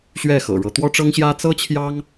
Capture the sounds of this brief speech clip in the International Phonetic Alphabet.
ɕ ɥ ɛ˥˩ x ɤ̰˨˩ ɻ ɤ˧˥ t̪ w ɔ˥ ʈ͡ʂ ɤ˥ ŋ ɕ j ä˥ t͡s ɤ˥ t͡ɕʰ j ɑ˥ ŋ

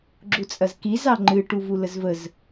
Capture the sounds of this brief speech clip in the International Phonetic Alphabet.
ɡ͡ǁ u t͡sʼ ɐ z k i z ɑ ŋ͡ǃ ɨ ʈ u v u l ə z v ə z

